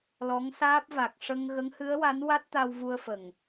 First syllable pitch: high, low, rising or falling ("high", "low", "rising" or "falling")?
rising